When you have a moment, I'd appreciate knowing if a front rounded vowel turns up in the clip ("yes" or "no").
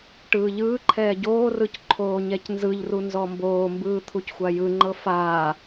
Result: no